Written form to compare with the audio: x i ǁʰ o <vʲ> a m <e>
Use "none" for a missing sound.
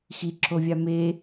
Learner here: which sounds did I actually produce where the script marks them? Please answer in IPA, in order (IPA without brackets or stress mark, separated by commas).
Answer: vʲ, e